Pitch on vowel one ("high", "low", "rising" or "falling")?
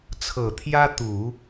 low